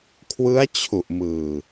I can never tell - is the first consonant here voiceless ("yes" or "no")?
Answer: yes